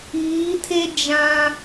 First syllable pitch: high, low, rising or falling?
rising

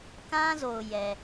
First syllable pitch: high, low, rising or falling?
high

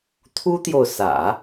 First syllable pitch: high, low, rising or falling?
high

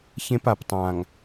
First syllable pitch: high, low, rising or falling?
high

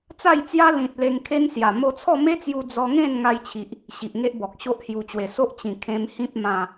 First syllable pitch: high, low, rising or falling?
falling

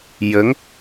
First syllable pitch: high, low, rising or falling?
rising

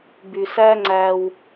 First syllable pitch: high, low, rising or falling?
low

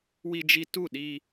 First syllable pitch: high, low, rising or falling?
high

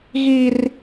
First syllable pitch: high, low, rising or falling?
high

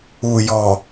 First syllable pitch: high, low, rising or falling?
low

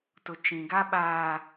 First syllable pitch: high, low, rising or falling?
low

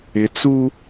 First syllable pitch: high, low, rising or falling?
low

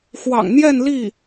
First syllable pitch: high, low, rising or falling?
low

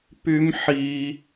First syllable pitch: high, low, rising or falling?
high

